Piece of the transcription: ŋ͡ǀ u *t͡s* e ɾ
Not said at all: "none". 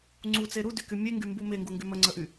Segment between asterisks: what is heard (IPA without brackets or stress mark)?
t͡s